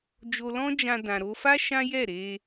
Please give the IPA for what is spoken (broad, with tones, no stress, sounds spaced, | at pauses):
d͡ʒ o˧ l ɔ̃˦ d͡ʒ ã˧ d ã˨ ɾ o˧ f a˦ ʃ ã˦ j ɛ˦˨ ɾ e˧